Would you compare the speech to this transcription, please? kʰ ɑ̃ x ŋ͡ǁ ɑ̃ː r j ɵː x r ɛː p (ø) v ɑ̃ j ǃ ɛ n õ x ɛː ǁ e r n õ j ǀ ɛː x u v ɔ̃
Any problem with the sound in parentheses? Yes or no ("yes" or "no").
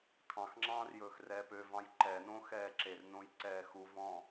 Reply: no